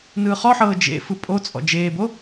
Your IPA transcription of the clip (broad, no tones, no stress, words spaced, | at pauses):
nɯːχɔħɤː d͡ʒḛfɯ pʼot͡sʼɔ̰ d͡ʒeːbo